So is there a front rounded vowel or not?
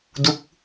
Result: no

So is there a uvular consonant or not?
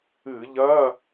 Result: no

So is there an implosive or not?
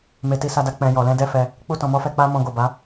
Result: no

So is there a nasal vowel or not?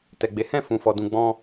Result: yes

